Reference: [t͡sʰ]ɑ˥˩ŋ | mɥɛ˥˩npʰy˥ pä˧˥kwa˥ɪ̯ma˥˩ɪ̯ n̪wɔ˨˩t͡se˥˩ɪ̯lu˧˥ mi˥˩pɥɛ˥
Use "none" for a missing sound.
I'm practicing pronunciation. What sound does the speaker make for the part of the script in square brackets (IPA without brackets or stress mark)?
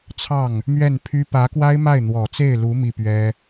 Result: t͡sʰ